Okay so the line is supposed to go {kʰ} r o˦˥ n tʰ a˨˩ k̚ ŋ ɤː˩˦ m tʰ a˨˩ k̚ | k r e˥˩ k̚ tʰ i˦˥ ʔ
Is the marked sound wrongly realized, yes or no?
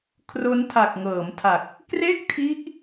no